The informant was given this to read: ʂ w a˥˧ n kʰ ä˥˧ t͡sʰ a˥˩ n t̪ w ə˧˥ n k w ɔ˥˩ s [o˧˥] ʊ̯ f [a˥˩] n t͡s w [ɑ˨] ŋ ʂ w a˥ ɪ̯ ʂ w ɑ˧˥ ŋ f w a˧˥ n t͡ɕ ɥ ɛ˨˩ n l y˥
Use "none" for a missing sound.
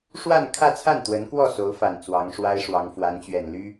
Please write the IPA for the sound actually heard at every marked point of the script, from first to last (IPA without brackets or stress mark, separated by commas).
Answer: o˧˥, a˨˩, ɑ˧˥